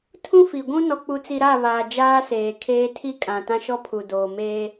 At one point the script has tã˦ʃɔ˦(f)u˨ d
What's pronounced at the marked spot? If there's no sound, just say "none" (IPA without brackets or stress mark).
pʰ